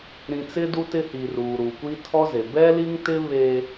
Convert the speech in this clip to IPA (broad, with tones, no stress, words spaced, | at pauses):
ɾĩ˨ t͡sɪ˦du˦tɪ˦hi˨ ruː˨ɾu˨kʷi˦ tʰɔ˦ze˨ bɛ˦li˦ŋtɪ˦ βe˦